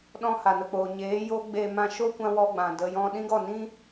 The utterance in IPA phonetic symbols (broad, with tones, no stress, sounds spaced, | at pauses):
ɗ ɔ̃˧ h a˨ n ə˨ k͡p oː˨ ɲ eː˨˦ j o˦ ɡ͡b e˧ m ã˧ ʃ o˦ kʷ ã˧ w ɔ˧ ɡ͡b ã˨ d ə˨ j ɔ̃˧ ɗ ĩ˦ ɡ ɔ˦˨ n ĩ˦